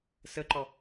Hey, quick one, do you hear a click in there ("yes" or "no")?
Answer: yes